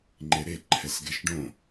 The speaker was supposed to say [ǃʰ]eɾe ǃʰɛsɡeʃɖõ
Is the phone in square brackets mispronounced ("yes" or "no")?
yes